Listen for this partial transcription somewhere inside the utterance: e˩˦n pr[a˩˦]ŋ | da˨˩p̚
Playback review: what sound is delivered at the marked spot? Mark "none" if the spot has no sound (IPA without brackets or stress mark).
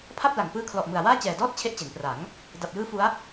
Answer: a˩˦